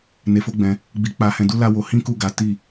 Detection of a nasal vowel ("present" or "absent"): present